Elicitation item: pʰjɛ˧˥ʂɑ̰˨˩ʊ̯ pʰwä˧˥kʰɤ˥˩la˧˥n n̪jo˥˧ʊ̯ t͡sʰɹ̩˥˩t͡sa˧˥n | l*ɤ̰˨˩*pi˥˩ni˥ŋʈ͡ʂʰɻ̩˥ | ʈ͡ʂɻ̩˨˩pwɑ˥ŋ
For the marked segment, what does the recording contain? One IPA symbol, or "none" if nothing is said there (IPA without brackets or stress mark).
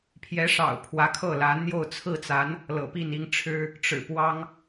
ɤ̰˨˩